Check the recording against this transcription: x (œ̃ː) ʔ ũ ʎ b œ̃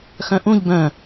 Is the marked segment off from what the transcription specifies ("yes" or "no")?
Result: yes